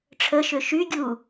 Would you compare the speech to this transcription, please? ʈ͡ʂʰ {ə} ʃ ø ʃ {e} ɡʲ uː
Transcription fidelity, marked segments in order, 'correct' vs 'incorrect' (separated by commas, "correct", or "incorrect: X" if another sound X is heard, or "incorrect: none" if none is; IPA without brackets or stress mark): correct, incorrect: y